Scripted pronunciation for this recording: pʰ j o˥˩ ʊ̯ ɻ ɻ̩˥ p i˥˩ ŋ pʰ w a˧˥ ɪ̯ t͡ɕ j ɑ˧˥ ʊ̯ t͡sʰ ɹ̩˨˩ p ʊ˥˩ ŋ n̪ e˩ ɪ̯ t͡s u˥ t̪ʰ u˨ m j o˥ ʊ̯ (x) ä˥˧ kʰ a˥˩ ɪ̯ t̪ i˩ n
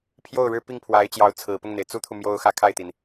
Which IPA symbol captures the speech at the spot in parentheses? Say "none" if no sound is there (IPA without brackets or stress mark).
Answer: x